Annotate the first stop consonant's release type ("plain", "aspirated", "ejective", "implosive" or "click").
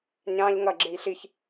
click